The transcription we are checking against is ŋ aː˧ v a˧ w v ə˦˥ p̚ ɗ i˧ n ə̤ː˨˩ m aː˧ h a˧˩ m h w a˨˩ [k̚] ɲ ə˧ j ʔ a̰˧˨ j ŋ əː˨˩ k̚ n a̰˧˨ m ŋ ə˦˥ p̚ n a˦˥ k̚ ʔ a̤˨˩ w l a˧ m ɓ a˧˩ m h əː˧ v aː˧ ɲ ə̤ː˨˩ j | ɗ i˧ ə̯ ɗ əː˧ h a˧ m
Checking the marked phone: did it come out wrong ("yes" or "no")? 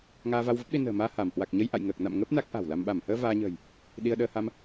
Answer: no